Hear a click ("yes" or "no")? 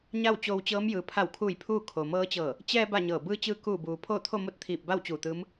no